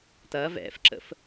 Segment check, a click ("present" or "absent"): present